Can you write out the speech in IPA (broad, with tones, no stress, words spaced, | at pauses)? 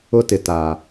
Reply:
ʊ˦tɪ˨ ta˨